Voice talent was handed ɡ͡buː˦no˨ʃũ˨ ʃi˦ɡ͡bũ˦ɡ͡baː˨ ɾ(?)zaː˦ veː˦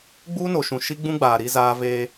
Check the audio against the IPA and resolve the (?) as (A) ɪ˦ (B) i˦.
B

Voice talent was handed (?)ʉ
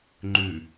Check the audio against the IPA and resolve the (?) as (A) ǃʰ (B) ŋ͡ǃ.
B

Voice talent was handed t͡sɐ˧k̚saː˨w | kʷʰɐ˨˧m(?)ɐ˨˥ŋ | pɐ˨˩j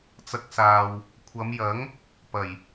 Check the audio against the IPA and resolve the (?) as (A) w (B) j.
B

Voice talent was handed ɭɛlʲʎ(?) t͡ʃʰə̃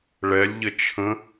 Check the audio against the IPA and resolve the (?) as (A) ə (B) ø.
A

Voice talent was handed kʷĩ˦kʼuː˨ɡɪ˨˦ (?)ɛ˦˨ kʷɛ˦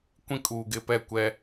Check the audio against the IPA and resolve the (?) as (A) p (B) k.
A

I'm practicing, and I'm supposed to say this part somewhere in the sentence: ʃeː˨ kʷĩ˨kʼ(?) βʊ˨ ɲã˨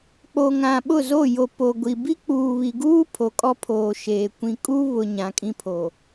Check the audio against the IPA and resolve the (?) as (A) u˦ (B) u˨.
A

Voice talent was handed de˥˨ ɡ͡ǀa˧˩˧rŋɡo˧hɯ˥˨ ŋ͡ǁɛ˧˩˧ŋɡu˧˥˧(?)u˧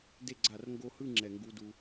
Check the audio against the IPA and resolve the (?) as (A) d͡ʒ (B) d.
B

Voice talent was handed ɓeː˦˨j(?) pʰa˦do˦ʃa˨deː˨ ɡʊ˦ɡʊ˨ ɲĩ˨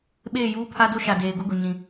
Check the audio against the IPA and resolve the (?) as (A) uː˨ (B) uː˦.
B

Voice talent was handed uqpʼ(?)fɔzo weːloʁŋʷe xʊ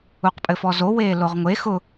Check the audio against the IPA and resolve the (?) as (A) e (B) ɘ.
B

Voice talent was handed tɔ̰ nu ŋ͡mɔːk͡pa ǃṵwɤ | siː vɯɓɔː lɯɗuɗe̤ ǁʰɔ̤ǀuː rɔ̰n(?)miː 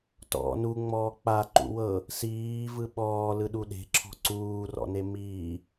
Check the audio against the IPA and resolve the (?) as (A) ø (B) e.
B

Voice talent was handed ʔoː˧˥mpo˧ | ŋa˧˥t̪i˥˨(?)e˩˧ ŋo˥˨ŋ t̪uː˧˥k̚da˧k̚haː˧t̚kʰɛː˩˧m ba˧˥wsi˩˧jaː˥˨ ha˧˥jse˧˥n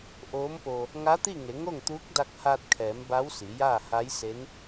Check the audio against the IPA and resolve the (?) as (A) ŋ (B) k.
A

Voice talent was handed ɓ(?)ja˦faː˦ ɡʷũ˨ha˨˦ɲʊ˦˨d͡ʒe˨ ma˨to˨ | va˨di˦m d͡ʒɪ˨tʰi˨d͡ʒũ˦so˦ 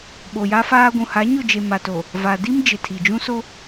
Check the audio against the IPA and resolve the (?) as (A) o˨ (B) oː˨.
A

